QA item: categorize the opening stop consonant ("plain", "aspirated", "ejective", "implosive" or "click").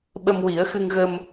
implosive